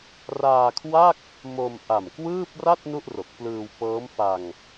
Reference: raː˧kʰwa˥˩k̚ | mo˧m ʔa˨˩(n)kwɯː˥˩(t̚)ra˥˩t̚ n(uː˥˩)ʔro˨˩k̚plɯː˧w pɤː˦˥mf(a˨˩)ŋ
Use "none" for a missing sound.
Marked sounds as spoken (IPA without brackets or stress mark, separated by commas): m, p̚, u˥˩, a˧